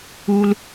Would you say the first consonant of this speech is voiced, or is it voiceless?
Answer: voiced